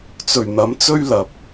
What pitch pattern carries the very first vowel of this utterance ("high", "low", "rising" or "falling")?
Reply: low